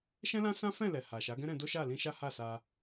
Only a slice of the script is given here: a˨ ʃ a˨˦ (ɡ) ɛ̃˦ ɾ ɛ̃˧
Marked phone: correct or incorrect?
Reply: correct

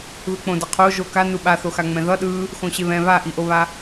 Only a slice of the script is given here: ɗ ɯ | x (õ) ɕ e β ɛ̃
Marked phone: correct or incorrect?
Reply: correct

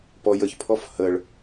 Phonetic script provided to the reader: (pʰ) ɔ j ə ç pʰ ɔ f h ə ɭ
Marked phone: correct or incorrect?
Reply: incorrect: p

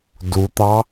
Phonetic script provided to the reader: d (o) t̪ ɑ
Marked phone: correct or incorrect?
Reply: incorrect: u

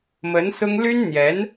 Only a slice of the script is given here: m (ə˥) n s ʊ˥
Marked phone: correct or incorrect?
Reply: incorrect: ə˧˥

